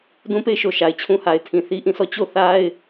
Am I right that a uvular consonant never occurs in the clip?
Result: yes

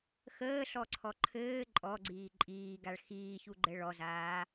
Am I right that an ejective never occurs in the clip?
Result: no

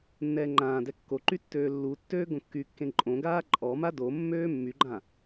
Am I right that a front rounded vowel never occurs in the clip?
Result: no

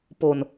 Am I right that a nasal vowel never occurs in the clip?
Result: yes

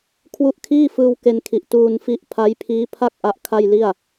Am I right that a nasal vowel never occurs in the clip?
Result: yes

